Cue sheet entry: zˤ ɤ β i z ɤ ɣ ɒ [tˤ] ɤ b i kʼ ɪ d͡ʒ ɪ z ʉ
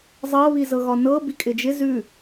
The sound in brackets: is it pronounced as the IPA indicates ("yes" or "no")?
no